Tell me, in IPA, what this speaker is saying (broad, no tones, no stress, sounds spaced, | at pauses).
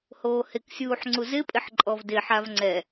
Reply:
h oː h ɪ k sʲ uː ħ ŋ͡ǀ u z ɪ pʼ ɪ ħ ǃʼ ɔ v d ɪ ħ a v ŋ͡ǀ ɛ